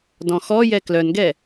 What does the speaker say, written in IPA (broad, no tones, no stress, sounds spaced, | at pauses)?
d ɔ̃ x ɔ j ɛ k l œ n ɡ ɛ